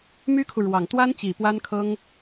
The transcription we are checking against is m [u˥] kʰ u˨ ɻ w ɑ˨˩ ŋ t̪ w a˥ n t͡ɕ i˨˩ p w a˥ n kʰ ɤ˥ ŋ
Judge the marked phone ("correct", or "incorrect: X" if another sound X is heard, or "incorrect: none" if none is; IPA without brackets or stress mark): incorrect: y˥